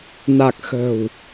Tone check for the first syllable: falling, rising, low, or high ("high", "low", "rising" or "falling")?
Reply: low